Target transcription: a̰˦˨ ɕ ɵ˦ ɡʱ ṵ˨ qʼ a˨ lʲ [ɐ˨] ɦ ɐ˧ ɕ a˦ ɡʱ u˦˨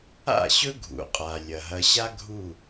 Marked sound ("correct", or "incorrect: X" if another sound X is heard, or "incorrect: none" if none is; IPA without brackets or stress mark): correct